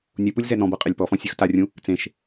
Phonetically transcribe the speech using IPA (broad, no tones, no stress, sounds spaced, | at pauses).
nʲ u p u lʲ z ɛ n ɔ̃ b ɤ qʼ ɛ lʲ p ɔ f ɔ̃ sʲ ɯ x t a rʲ ũ | t͡s ẽ ʃ